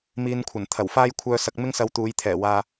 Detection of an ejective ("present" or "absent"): absent